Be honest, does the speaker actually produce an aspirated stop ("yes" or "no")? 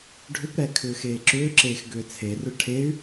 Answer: yes